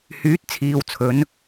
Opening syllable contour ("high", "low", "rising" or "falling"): rising